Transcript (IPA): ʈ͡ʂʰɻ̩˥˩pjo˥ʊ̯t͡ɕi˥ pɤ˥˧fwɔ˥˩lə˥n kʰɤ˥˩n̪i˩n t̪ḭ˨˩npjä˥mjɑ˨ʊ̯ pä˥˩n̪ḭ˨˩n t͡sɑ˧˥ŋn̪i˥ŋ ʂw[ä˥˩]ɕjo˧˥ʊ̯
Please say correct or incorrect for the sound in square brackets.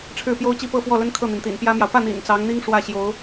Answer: correct